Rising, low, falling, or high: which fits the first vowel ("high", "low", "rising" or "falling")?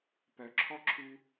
low